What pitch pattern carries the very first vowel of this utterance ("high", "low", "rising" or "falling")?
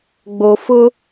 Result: low